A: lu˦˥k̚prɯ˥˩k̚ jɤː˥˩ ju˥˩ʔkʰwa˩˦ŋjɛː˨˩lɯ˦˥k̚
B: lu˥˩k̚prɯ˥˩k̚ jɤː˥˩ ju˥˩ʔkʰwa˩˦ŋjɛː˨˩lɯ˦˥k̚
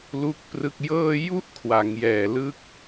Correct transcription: B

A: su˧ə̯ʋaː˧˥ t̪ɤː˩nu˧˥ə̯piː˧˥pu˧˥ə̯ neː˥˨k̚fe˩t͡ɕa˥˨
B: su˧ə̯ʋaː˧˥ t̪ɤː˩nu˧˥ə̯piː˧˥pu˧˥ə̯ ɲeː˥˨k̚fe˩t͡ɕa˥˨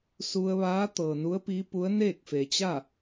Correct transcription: A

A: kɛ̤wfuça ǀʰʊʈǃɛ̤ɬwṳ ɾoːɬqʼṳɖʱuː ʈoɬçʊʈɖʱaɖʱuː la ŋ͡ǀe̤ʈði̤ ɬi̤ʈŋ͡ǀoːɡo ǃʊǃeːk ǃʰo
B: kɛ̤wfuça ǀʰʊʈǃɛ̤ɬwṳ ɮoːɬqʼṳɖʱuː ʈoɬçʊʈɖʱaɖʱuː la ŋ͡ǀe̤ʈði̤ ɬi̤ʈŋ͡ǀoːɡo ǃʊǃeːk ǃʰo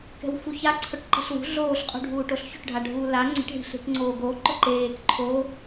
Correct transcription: B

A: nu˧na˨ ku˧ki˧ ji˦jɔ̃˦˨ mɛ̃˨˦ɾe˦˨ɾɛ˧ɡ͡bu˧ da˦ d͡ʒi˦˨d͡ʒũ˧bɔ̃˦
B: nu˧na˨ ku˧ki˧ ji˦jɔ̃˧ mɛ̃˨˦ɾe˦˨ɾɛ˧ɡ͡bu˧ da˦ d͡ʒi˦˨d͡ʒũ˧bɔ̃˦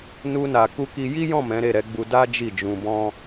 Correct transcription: A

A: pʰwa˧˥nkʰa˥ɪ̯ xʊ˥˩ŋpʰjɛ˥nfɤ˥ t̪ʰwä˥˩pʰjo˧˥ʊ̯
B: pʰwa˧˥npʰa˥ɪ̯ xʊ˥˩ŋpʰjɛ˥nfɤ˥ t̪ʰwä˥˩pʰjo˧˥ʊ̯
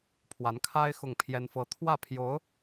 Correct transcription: A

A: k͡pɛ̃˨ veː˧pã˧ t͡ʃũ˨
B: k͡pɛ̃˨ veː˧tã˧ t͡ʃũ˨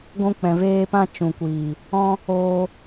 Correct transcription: A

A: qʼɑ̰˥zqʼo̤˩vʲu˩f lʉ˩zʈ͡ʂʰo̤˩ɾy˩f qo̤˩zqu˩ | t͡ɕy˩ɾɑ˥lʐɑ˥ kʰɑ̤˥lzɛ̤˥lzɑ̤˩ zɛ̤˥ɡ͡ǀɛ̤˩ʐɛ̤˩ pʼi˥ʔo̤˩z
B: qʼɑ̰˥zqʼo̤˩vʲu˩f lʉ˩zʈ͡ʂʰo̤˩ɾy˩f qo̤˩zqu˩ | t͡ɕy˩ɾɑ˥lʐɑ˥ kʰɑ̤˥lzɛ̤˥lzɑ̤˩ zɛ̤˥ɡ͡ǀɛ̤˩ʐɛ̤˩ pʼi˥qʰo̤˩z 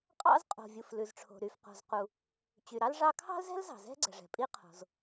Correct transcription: B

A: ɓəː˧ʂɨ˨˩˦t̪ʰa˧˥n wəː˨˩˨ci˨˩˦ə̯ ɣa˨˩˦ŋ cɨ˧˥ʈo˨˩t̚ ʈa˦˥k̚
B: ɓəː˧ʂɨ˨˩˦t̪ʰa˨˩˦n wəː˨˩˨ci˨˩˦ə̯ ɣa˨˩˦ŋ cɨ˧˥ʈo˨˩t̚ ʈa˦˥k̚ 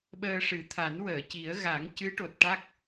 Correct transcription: B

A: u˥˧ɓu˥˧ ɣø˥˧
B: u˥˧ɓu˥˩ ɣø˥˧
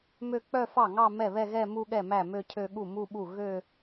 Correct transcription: B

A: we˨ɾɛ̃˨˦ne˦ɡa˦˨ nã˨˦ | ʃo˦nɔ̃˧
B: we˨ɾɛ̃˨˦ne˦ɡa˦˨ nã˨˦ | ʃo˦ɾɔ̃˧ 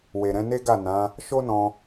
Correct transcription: A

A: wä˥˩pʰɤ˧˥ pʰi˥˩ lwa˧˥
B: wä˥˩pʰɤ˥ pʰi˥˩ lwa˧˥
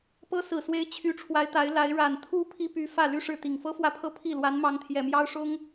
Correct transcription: B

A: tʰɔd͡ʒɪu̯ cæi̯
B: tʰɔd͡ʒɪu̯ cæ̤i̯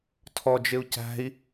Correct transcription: B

